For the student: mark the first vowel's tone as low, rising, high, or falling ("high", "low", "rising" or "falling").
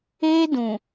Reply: high